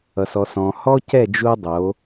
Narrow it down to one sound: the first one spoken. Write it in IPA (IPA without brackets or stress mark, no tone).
ʌ